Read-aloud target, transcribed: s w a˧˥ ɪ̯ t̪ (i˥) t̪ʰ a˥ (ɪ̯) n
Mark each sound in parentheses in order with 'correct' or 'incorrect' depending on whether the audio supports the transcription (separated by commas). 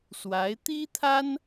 correct, incorrect